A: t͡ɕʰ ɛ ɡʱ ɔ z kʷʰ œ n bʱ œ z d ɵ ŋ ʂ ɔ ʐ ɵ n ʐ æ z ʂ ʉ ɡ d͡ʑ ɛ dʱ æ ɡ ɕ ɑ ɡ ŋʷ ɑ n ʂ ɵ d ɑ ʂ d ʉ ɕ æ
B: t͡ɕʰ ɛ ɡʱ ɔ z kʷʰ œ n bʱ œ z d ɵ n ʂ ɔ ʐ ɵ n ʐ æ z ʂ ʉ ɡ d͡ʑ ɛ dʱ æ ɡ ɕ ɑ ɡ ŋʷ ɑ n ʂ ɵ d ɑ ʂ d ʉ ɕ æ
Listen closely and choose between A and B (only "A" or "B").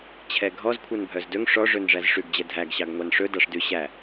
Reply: A